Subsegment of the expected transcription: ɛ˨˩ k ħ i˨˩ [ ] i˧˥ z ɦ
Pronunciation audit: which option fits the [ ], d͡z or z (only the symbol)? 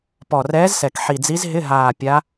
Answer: d͡z